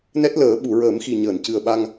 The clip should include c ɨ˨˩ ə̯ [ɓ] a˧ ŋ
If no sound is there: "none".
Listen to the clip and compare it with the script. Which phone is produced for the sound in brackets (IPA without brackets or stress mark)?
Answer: ɓ